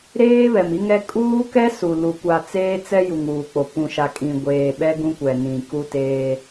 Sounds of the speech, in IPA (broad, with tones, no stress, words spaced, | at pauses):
ɾeː˦βɛ˨mi˦ŋɛ˦ kʼuː˦kɛ˦ su˨ lu˨ kʷa˨t͡seː˦t͡sɛ˦ ju˨ŋuː˨k͡po˨ pũ˨ʃa˨kʼĩ˨ ɡʷeː˨ ɓɛ˦ɡũ˦kʷɛ˨ nĩ˨ku˦teː˦